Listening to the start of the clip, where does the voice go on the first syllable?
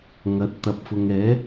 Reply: rising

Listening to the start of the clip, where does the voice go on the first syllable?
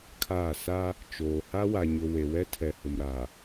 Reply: falling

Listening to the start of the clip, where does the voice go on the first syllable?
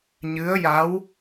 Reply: rising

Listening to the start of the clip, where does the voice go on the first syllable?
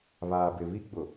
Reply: low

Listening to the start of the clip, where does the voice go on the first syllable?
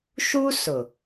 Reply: high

